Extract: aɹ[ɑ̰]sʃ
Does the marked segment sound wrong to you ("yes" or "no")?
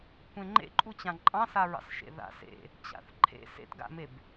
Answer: no